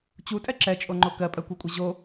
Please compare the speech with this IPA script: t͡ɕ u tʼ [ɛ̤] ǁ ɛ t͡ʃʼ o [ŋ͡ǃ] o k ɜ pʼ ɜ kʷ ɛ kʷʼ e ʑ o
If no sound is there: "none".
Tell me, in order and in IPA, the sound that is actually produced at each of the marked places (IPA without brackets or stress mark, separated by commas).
ɛ, ŋ͡ǃ